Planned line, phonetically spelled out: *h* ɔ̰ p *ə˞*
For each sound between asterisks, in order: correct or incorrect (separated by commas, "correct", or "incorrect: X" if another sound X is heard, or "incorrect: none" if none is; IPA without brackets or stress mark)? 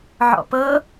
incorrect: ʕ, incorrect: ɤ